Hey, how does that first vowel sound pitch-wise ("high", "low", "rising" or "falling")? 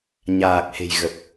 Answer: low